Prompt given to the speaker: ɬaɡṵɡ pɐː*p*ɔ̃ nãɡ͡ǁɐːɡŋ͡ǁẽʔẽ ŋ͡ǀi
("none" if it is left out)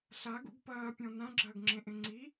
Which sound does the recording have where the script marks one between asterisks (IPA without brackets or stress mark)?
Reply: pʲ